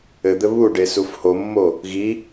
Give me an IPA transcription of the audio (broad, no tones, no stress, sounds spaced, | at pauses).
ɘ d̪ ɘ β u ɖ e s u f h o mː o | ɣ i